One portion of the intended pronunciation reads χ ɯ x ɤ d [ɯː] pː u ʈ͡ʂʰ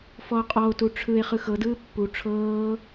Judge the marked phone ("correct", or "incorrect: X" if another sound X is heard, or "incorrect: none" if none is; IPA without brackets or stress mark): correct